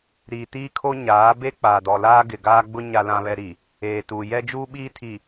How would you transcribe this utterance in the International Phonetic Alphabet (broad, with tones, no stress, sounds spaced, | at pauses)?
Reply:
ɾ iː˨ t iː˦ kʰ o˦ ɲ aː˨˦ b e˦ k͡p aː˨ d ɔ˨ l aː˦ ɡ ɪ˨ ɡ aː˦ ɡ͡b ʊ˦ ɲ a˦ l ã˦ β ɛ˦ ɾ i˨ | eː˨ t u˨ j ɛ˦ d͡ʒ uː˦ ɓ iː˦ tʰ i˨